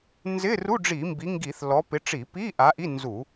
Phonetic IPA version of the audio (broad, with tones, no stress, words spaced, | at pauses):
nzɪ˧˥˧ru˧˥˧ ɖ͡ʐi˧˩˧mbi˨˦ŋɡi˧˩˧θ lɔ˨˦ pɪ˨˦ʈ͡ʂi˧˩˧pi˧˥˧ ʔa˨˦ʔi˧˥˧ nzu˧˩˧